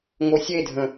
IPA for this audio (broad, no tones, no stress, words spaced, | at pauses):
ŋosʲedʱə̃